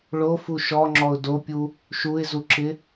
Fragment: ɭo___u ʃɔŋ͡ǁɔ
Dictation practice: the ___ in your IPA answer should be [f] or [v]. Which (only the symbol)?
f